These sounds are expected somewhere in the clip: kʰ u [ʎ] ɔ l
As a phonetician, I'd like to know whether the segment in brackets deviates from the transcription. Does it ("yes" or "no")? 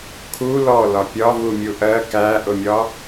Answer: yes